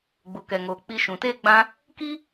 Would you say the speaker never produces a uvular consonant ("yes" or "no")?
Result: yes